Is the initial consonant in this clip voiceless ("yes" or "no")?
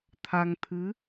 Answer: yes